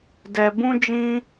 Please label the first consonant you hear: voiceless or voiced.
voiced